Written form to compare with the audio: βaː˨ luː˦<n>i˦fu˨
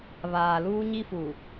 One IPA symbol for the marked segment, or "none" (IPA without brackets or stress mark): ɲ